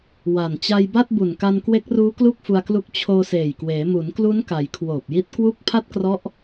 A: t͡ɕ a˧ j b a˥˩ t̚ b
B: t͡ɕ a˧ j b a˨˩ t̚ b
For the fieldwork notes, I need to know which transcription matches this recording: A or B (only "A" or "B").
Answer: A